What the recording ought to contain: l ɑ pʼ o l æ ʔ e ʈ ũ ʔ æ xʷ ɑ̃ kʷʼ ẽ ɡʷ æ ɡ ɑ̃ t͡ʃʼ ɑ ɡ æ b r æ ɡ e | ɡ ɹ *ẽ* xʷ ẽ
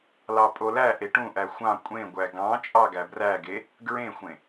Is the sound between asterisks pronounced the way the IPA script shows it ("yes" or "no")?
yes